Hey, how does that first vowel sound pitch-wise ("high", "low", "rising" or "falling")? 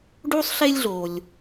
high